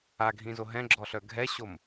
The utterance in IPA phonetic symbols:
aɡʱĩzo ɦɛ̃ɡ͡ǁɔɬœ ɡʱɛɕom

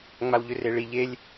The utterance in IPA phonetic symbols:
ŋ͡mawʎʏreɭi ʎelʲ

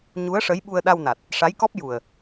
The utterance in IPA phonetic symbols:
ɲu˧˥ə̯ʂə˧˥j ɓu˧ə̯ɗa˧wna˨˩t̚ | ʂa˧˥jkɔ˦˥p̚ ju˨˩ə̯

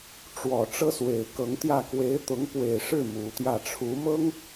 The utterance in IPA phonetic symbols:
ʈ͡ʂwɔ˨˩ ʈ͡ʂɤ˥swe˨˩ɪ̯kɤ˧˥ŋt̪jä˥˩ kwe˧˥ɪ̯t̪ʊ˧˥ŋpwe˨˩ɪ̯ʂɻ̩˥˩ mu˧˥t̪jä˥˩ ʈ͡ʂʰu˧˥mɤ˥ŋ

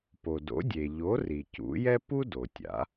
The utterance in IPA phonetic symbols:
po˩do̰˩˥dʲe˩ ʎo˩˥ri˩ cṵ˩˥jɛ˥ pu˥ do˩tʲa̰˩˥

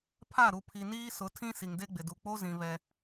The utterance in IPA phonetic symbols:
pʰa˦˨ɾu˨pʰi˨niː˦ sʊ˨˦tʰĩ˦ si˨ŋde˦ɡ͡bɪ˨du˨ k͡po˦zĩ˨ βɛ˦

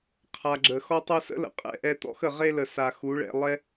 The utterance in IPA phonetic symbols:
qʰa˨ɡ͡ǁə˨ xɔ˧tˤɜ˧sə̰˦lə̰˨ qʼɛ̰˧ʔɛ˧t̪ɔ̰˦x ə˨ʁe˦lə˨ sa˨ xu˨˦ɭɛ̰˧ lˠɛ˦

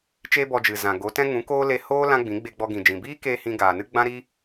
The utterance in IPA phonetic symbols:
t͡ʃeː˦bɔ˧d͡ʒɨ˨ zã˨ɡo˨˦tɛ̃˦ ŋũ˨˦koː˦le˧ hoː˦ lã˦ɡ͡bĩ˨˦ ɡ͡be˧ɡ͡bɔ˧ɡĩ˨d͡ʒĩ˨ biː˦keː˧ hĩ˧ ɡaː˨nɨ˦ ɡ͡bã˦ɾi˦

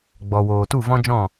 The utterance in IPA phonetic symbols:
ɡ͡bɔ˨woː˨ tu˦˨vɔ̃˦ d͡ʒɔ̃˦˨

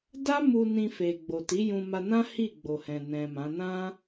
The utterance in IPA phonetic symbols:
da˦mu˧ nĩ˧fe˨ ɡ͡bo˨ ti˨˦jũ˧ma˧nã˦ hi˦˨ɡ͡bo˨hɛ̃˨ nɛ̃˨ mã˨˦ nã˦

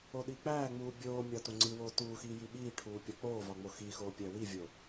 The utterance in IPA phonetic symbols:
oɗik͡pæːŋ͡muː bʲoːmʲɒ toŋ͡ǀiwoː tuːxiː jiɓiːʈʰuː pʲɒk͡poːvɒ ŋ͡moxixoː pʲæwivʲo

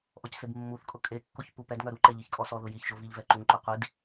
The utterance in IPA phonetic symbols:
ʔɔcsebmːuθkʼʊ kʼe kːoçpupɛdŋœ ɾuǃɛ ʎiçkʼɔsɔðʊ jiçʒo viʎvɛǃuŋǃo qʷid

